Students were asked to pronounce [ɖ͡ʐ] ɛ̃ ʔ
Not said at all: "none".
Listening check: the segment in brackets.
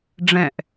ɖ͡ʐ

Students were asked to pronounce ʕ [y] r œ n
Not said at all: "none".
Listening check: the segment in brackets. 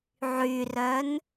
y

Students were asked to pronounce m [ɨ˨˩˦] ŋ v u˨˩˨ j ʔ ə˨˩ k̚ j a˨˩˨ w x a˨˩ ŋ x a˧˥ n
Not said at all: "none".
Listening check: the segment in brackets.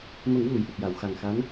ə˨˩˦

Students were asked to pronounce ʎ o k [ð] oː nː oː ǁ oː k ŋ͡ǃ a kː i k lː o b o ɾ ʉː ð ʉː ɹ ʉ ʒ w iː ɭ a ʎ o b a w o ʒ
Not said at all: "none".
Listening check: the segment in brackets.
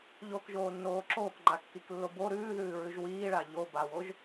ʒ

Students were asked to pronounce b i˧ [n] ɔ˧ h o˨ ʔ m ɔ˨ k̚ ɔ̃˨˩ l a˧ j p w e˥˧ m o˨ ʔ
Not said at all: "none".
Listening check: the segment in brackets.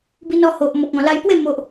n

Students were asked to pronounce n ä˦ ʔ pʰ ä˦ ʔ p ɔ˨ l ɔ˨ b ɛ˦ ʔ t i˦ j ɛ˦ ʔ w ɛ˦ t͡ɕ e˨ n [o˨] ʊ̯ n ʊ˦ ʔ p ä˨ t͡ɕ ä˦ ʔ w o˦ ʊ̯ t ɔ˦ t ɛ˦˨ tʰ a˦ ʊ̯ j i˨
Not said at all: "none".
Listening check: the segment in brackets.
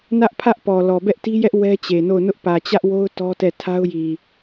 o˦˨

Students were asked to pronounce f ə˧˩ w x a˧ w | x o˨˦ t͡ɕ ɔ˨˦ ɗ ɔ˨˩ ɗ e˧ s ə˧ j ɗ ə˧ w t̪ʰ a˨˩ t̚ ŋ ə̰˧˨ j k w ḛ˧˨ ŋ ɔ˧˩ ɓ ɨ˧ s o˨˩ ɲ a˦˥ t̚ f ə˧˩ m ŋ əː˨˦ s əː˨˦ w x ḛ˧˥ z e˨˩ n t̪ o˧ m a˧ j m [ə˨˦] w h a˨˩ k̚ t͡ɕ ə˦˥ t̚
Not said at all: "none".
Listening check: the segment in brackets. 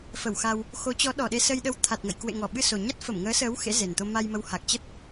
ə˨˦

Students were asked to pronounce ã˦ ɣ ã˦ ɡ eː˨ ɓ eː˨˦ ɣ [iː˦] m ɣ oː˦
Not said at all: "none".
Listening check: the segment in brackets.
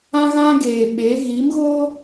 iː˨˦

